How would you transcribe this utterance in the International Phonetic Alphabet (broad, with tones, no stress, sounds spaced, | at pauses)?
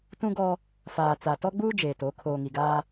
t ũ˦ ɡ ɔ˦ | f aː˨ t͡s a˨ t ɔ˦ ɡ͡b uː˦ d͡ʒ eː˨ t o˨˦ kʰ oː˨ ŋ i˨ ɡ aː˦